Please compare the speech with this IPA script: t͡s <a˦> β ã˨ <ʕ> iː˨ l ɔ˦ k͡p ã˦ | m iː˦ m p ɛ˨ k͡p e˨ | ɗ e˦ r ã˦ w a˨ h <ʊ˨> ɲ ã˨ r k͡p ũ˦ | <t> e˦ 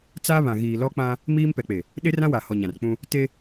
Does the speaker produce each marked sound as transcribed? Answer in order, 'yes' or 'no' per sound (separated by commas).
yes, no, no, yes